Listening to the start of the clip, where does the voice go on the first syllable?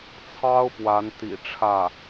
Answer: high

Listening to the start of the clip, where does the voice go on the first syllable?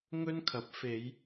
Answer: high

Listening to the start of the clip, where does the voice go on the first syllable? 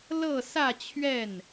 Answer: falling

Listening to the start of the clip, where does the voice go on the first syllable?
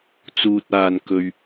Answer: low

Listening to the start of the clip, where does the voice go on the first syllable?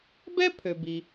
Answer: high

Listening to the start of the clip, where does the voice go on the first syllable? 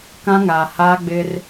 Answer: high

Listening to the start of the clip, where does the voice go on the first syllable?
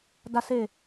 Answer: low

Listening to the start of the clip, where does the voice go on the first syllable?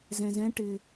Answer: low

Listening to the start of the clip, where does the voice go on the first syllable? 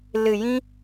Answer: low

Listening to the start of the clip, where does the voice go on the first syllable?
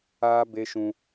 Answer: high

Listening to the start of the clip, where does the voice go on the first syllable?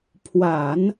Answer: low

